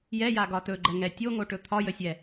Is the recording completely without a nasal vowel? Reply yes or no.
yes